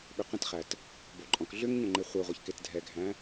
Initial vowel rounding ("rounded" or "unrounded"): rounded